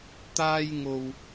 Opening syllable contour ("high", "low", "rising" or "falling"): high